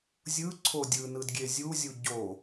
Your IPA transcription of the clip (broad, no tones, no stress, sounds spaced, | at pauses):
zʲ ɯ ǀʰ o dʲ ɯ n ɯ d ɡʲ e zʲ u zʲ u ɟ o